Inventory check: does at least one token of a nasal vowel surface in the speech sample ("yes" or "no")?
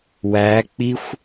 no